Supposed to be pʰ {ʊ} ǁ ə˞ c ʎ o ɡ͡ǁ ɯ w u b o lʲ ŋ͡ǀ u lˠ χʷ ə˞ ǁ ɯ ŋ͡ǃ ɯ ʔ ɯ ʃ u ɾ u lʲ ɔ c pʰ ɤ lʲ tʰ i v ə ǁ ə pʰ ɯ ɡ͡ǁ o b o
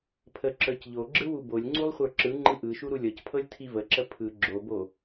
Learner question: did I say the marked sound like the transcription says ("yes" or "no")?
no